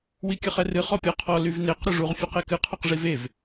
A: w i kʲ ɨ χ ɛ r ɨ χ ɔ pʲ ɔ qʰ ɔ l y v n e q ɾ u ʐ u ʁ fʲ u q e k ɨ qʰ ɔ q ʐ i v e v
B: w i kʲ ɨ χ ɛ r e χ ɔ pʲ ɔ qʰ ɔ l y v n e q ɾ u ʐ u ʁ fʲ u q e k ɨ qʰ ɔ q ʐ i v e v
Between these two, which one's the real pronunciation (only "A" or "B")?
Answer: A